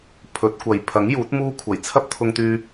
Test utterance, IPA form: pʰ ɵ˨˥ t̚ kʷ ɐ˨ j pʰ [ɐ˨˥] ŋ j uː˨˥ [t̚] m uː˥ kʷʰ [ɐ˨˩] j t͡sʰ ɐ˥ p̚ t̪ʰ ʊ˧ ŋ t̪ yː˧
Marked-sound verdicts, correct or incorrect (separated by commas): correct, correct, correct